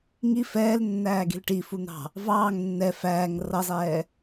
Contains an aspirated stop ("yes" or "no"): no